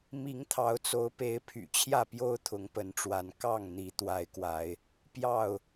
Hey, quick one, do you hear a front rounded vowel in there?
yes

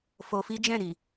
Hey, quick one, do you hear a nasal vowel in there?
yes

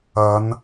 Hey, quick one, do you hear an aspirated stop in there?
no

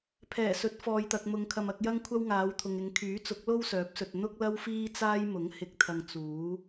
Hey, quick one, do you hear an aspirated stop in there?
yes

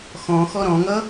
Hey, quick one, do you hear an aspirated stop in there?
no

